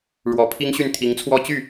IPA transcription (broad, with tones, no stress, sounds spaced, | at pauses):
ɻ w ɔ˨˩ pʰ i˥ ŋ ɕ y˥˩ n t̪ʰ i˧˥ ŋ t͡sʰ w ɔ˥˧ t͡ɕ y˥˩